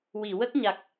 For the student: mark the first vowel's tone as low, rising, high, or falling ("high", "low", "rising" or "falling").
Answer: low